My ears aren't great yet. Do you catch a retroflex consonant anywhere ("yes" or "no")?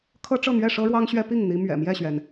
yes